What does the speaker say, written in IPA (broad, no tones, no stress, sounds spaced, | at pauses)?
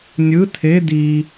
nʲ ɯ tʰ e d i